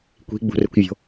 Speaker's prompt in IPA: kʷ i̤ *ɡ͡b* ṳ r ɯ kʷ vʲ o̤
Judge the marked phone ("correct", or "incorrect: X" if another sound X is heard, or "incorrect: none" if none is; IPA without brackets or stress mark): correct